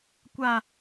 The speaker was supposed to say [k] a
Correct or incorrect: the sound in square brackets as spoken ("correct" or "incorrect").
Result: incorrect